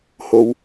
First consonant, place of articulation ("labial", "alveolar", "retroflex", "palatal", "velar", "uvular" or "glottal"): glottal